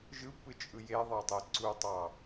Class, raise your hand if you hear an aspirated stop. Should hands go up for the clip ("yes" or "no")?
no